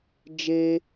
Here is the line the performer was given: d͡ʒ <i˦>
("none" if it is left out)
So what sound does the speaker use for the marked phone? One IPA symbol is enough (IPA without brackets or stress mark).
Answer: e˦